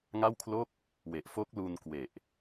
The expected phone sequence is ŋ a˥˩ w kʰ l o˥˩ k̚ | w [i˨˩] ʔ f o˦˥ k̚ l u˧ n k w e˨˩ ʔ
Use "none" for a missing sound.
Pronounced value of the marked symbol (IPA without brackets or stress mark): e˨˩